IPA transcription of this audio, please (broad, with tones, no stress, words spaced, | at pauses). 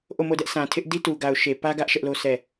ʔo˦˨mo˦˨dɛ˦ʔ sã˨tʰɪ˦ʔ di˦tu˨ɡa˨ʊ̯ ʃe˨pä˦ɡä˦ʔ ʃɛ˦ʔlo˦sɛ˦˨